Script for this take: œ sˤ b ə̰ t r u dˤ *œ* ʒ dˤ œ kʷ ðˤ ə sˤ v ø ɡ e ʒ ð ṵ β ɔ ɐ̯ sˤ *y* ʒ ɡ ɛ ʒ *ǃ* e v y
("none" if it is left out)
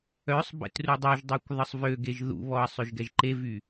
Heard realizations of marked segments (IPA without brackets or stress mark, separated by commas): œ, ø, ǃ